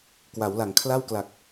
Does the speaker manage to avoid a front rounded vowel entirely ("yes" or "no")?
yes